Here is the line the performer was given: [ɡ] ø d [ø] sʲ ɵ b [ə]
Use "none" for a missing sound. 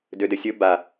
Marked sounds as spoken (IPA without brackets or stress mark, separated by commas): d, ɘ, a